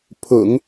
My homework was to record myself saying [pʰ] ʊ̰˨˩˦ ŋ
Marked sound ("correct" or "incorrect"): correct